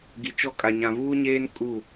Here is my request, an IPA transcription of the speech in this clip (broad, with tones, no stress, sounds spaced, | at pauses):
ɡ i˨ t͡ʃ ɔ˦ kʼ a˨ ɲ ã˨ v uː˦ ɲ eː˦ n kʼ u˦˨